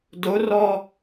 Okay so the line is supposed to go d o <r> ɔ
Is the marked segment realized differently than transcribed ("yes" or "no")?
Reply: no